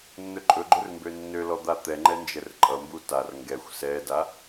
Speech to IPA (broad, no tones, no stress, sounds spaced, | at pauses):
nː ɵ ǃʼ ɵ ɡ͡ǃ ɵ r m b ø nː ø l ɔ d̪ a t̪ ɛ ŋ͡ǃ ɛ n d͡ʒ ɛ r ǃʼ ʌ m b u t a r ŋ ɡ ɛ xʷ s ɛ d a